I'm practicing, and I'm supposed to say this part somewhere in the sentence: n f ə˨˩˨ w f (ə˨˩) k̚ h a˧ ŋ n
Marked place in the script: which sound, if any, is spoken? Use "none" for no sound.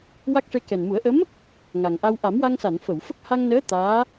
ə˦˥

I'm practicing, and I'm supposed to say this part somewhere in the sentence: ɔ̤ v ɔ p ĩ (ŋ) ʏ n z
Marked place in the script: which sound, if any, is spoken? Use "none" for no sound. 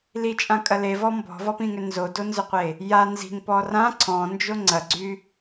ŋ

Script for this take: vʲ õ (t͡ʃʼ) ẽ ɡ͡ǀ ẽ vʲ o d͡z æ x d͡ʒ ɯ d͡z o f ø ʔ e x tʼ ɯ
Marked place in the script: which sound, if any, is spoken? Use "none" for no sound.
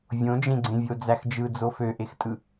d͡ʒ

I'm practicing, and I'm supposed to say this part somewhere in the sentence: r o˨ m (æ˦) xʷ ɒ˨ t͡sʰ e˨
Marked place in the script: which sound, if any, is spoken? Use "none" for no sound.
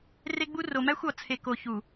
æ˦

